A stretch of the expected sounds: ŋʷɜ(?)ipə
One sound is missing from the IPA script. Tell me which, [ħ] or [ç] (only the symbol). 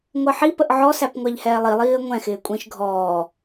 ħ